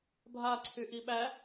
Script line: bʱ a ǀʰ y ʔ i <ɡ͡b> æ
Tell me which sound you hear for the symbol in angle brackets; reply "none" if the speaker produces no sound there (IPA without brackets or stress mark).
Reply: ɓ